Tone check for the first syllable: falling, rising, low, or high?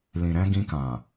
low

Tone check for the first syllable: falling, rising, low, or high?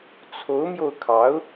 rising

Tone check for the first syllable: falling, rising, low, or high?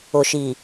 low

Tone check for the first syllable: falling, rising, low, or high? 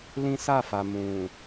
high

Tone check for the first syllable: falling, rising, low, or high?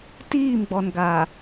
falling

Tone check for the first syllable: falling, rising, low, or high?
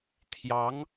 rising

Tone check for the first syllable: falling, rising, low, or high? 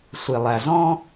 low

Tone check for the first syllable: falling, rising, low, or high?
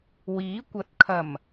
rising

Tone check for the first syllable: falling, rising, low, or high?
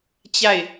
falling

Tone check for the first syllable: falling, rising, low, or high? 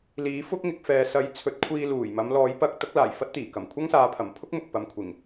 rising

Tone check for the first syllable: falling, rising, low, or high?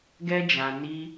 high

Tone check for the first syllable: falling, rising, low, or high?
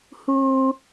high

